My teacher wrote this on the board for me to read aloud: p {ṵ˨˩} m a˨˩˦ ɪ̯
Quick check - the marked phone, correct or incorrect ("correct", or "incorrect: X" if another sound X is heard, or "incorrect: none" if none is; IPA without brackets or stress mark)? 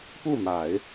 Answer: incorrect: u˥˩